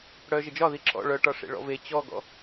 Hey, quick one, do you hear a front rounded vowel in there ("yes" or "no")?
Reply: yes